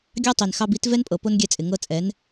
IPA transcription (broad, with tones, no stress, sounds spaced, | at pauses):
ɡʲ ɑ˦ tˤ i˨ n x ɑ˧ b i˨˦ t v ɛ˦ n pʼ ɤ˨ p o˦ n ɡʲ ɛ˧ t͡sʼ ɪ˨ ŋ ɤ˧ t͡sʼ ɛ˨˦ n